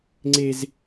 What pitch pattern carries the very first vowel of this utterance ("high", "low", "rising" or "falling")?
high